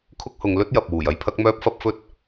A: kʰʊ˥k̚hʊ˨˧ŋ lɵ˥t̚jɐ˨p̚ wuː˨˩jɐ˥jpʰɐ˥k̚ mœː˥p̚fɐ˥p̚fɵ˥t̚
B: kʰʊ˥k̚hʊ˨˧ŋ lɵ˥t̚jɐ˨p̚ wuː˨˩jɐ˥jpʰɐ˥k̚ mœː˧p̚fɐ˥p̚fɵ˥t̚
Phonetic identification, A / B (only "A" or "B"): A